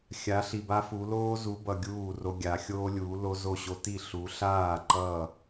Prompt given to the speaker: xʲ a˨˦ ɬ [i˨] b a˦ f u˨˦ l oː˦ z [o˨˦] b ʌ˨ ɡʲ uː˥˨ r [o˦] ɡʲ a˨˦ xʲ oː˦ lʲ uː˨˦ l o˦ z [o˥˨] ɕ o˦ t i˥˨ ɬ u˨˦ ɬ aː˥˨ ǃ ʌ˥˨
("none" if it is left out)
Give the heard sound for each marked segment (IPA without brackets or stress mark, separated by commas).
i˨, u˨˦, o˦, o˥˨